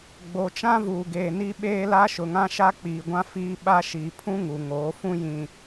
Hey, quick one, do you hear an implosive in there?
yes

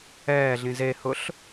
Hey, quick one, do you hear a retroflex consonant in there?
no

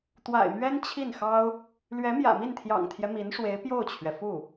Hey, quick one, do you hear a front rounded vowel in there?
no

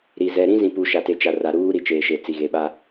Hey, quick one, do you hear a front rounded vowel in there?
no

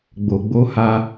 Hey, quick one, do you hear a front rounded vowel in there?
no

